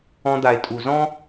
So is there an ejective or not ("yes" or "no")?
yes